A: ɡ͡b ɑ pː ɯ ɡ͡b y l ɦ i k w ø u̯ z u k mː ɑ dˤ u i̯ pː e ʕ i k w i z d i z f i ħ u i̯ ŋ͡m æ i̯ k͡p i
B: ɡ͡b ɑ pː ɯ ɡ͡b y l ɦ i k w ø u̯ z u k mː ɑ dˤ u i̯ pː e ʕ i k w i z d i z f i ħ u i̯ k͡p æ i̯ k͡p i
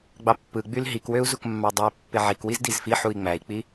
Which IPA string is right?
A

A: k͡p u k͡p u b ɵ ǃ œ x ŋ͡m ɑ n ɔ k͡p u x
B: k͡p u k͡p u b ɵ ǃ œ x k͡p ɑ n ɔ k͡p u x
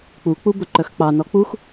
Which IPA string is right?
B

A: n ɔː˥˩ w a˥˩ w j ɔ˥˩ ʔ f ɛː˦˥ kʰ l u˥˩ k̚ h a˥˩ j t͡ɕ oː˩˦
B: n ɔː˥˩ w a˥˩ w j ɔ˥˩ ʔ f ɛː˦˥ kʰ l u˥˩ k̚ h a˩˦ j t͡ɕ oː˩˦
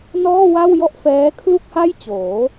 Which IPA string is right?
A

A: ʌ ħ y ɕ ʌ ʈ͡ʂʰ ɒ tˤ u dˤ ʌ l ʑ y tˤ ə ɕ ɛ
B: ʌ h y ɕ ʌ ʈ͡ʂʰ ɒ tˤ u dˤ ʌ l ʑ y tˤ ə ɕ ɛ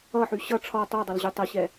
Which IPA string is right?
A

